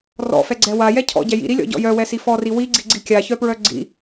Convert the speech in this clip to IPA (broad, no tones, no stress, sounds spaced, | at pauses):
r ɔ̰ f ɛ ɡ͡ǀ ɛ w a j ɛ cʰ ɔ̰ ɟ ɛ j ḭ ɾ i lʲ ɔ̰ ɟ ɔ̰ j œ w ɛ s i f ɔ r i w i ɡ͡ǀ i ɡ͡ǀ i kʲ a ç œ p ɹ œ ɡ͡ǀ ḭ